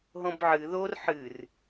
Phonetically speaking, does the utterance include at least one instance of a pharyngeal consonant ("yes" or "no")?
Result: yes